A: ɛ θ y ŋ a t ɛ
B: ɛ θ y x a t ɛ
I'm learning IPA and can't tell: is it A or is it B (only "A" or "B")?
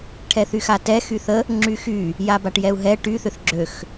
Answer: B